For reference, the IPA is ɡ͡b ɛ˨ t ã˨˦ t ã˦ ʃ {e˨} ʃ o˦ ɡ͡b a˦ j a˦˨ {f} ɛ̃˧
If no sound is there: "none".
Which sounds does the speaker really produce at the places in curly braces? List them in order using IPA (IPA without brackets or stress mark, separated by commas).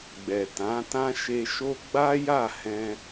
e˧, h